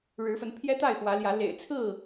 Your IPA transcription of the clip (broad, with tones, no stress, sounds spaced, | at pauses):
ɻ ɻ̩˨˦ f ə˨˦ n pʰ j ɛ˦ t̪ a˥˨ ɪ̯ x w ä˨˦ l j ä˨˦ l ḛ˨˩ ɪ̯ t͡sʰ ɹ̩˥˨